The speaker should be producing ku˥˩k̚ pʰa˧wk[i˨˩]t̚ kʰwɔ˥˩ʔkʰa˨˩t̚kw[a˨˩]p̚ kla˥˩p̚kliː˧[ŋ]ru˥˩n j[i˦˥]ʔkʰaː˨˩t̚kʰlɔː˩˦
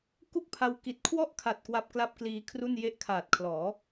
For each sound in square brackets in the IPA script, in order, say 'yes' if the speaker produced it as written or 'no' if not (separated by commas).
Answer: yes, yes, no, no